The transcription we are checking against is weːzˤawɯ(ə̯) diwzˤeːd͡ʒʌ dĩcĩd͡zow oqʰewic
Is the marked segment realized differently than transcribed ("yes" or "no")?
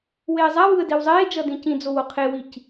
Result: no